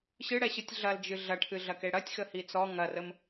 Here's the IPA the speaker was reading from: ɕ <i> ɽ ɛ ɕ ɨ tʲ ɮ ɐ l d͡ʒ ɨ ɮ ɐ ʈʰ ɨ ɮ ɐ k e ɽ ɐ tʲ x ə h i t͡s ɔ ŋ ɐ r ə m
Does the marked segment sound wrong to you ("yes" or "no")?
yes